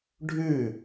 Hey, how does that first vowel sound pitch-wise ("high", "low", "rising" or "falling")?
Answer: falling